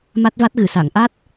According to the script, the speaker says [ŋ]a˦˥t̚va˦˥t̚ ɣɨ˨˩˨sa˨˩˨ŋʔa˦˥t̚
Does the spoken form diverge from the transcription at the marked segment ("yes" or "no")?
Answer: yes